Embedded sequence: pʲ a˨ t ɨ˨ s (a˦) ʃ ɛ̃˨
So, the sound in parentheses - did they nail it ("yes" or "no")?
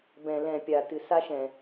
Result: yes